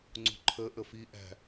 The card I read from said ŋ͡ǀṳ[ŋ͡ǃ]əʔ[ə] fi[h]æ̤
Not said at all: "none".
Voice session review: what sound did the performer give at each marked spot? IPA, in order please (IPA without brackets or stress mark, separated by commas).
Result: ǃʰ, ə, ʔ